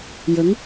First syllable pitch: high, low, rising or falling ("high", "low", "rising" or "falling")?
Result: rising